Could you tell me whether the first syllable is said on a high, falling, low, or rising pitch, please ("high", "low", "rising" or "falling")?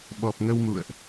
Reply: low